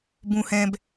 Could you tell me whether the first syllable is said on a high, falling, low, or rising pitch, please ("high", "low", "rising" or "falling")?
high